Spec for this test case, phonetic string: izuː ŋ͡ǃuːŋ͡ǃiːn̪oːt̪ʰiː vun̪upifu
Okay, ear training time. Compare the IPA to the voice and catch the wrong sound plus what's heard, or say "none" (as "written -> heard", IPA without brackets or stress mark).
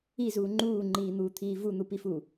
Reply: oː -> uː